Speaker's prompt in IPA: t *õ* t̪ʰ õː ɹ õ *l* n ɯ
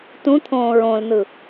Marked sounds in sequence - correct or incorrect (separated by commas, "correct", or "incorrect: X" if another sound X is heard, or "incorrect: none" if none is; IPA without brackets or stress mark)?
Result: incorrect: ũ, correct